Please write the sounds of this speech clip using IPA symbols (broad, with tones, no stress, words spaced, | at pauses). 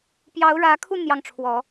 pjɑ˧˥ʊ̯ɻä˧˥kʰu˥˧ n̪jɑ˥˩ŋʈ͡ʂʰwɔ˨˩˦